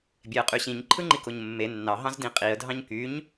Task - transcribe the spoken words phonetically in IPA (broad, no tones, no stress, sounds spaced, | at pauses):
bʲ e ə̯ qʼ y ɕ ĩ ɲ ǃʰ ɯ ŋ͡ǃ i k o ɲ mː e nː ɑ ɦ ɑ̃ z d ĩ qʼ i ə̯ dʱ ɑ̃ ɲ k y ɲ